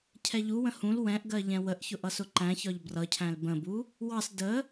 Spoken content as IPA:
cʰ ɛ ʎ u w ə̃ h ũ l w ɛ̃ ʔ ɡ ɜ ʎ ɛ̃ w ə ʔ ç ʊ ʔ ʌ s ʊ ǃ æ̃ ç ɒ ʎ b r ʌ cʰ æ̃ l b ə̃ b u | w ɑ s d ə

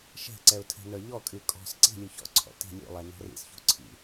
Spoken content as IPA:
ʃ ɛ̤ ǀ ɛ ʊ̯ tʰ ɛ̤ n ə˞ ʎ ɔ kʼ y kʼ ɔ̤ s ǀ i̤ lʲ u ç ɔ̰ ǀʰ ɔ̰ t i̤ lʲ ṵ lˠ ɛ n ɔ̤ r ḭ s ç ṳ ǀʰ ḭ

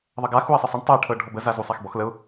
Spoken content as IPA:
ðˤ ə ɡ a x u ɪ̯ sˤ ə sˤ ə ɳ tˤ ɤ ə̯ ʈʰ ɤ ɖʱ ɔ b ə z a z u sˤ a x b ɔ x l ə ʊ̯

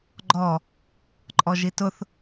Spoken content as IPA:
ɡ͡ǃ ɔ | ǃʼ ɔ ʒ i t ʊ θ

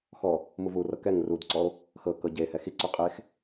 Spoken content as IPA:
x ɔ | m u v u r ɤ k ɛ ŋ r u d ǀ ɔ o̯ | x ɤ k ɤ ɟ e h ɛ x i ǀ u qʼ e x

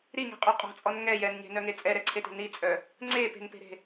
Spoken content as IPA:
ɾ i ŋ e̤ qʼ œ qʼ ɔ̤ t͡sʼ ɔ n ŋ ɛ j ɛ n ɲ e̤ n œ ŋ e t͡sʼ ɛ ɾ ɛ ǀʰ e t e̤ n i t͡sʼ œ | ŋ͡ǀ e p e̤ n p e̤ ɾ e̤

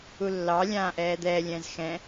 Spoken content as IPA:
u lː ɑ lʲ ãː ʔ ɛː d̪ ɛː lʲ ɛ̃ː z x ɛ̃

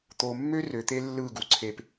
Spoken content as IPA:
t̪ o˨ mː ø˦ r ø˨ t̪ e˦ lː ɯ˦˨ ɡ u˨ ǀʰ e˧ p

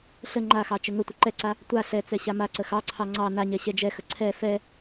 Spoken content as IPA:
ɬ ə ŋ͡ǃ a x ɑ t͡ʃ ə ŋ ə tʷ ə ǃ ɛ ǀ a | tʷ a ɬ ɛ t͡s ɛ ɕ a m a ǀ ə x ɑ ǀʰ ɑ ŋ͡ǀ ɑ n a ɲ ɛ ɕ ɛ d͡ʒ ɛ x ə ǀʰ ɛ f ɛ

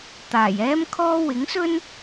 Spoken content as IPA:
t̪ aː˨˩ j ɛː˥ m kʰ ɔː˥ w ɪ˨˥ ŋ s ɵ˥ n

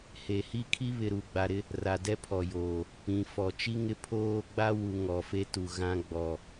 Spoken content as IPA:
h e˨ h i˦ kʰ i˦ β ɪ˨ ɾ u˨ ɡ͡b a˨ ɾ ɪ˦ | r a˨ d ɛ˦ pʰ ɔ˨ j oː˨ | p ĩ˨ f ɔ˨ t͡ʃ i˦ ŋ ɪ˦ pʰ oː˦ ɡ͡b a˦ w u˨ ŋ ɔ˨ f e˦ t u˨ ɣ ã˦ ɡ͡b ɔ˨

